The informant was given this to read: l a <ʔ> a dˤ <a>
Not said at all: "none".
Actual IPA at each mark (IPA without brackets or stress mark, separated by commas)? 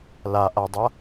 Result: ʔ, a